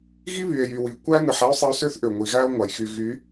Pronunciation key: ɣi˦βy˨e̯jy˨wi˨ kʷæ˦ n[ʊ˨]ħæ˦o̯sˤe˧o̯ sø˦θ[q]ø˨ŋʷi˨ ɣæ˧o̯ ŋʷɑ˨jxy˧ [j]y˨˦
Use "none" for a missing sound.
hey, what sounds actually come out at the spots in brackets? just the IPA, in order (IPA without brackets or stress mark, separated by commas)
ɯ˨, ʔ, ɣ